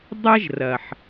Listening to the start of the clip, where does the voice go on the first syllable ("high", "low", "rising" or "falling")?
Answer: high